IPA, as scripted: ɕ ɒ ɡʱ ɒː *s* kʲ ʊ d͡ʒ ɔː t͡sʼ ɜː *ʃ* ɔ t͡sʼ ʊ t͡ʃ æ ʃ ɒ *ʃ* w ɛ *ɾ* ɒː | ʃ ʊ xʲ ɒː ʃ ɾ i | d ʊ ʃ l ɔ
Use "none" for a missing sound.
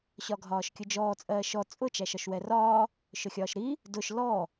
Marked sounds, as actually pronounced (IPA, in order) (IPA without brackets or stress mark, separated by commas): ʃ, ʃ, ʃ, r